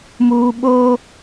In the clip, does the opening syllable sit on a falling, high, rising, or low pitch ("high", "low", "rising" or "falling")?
high